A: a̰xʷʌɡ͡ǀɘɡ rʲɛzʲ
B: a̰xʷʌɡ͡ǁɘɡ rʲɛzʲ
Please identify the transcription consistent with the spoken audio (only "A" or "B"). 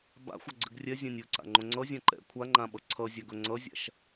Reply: A